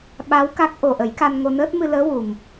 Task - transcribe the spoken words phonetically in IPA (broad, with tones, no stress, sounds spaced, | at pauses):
ɓ a˧˥ w k a˦˥ k̚ ʔ o˨˩ ʔ ə˨˩˦ j k a˧ n ŋ o˧ n əː˦˥ t̚ m ɨ˧ l əː˧˥ w u˨˩ m